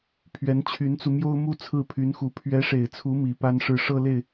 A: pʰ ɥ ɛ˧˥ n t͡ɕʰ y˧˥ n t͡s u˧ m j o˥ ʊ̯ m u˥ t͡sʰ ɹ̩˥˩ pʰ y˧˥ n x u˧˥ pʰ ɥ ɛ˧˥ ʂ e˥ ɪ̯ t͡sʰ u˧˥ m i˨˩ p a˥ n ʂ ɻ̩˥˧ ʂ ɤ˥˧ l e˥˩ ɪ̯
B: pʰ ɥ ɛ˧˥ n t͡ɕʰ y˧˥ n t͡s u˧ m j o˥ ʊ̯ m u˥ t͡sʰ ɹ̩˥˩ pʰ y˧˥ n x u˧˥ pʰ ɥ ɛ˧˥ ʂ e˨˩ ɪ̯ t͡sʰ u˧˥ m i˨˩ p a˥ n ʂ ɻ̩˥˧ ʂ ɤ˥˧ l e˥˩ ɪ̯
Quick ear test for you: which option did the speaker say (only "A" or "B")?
B